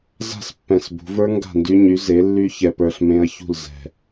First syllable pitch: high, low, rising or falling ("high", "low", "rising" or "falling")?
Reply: falling